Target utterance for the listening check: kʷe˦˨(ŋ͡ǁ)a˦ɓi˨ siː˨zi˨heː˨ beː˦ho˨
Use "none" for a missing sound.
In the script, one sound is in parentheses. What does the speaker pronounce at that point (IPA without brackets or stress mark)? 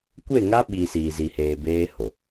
ŋ